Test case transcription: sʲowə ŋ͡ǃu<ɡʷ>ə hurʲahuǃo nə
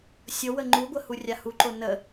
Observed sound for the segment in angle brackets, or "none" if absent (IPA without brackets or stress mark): ɡʷ